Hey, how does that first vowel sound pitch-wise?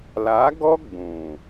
rising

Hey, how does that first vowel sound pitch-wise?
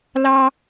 high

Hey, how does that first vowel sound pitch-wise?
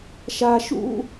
high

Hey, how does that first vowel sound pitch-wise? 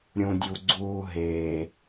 low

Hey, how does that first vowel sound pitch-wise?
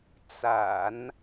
low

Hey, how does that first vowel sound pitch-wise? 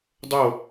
falling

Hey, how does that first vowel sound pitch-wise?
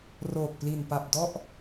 low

